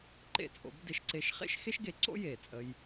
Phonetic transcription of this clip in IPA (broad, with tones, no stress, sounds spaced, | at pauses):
ǃ ḛ˧ t͡sʼ o̰˩˧ b d e˧ ʃ ǀ e˧˥ ʃ χ ḛ˥ ʃ x e˥ ʃ ɡ e˩˧ ǀ o̰˥ j eː˩ t͡sʼ ə˧ j